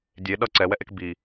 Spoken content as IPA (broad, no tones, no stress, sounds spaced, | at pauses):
dʲ e ɗ ʌ ǀ ɛ w ɛ ʔ e k b i